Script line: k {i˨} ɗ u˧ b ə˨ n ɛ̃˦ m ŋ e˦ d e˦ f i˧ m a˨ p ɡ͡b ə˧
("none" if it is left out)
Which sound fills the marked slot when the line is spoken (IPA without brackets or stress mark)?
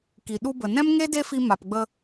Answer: i˨